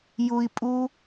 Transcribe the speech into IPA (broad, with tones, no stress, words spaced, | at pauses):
ju˦i̯ pʼu˦